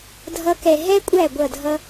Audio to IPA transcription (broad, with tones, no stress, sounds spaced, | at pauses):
dʱ ʌ˧˥ k ɛ˨ ɦ ɛ˥ kʷʼ æ˥˩ ɡʷ ʌ˥˩ dʱ ʌ˥